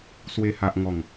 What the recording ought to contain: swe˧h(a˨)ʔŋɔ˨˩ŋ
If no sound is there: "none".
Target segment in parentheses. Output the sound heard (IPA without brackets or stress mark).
a˨